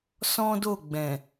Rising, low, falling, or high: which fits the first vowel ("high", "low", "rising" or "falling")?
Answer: high